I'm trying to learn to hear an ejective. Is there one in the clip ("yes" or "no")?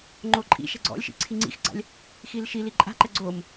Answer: yes